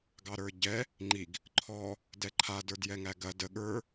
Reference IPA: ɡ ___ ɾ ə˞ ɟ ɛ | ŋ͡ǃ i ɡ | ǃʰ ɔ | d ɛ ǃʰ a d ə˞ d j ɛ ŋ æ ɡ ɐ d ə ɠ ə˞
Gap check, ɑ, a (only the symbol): ɑ